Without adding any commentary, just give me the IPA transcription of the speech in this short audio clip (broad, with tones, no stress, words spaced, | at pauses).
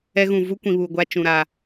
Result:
ɛ˦ɣũ˨ vu˦ kʷĩ˨βuː˨ɡʷa˦ t͡ʃũ˨ɾaː˨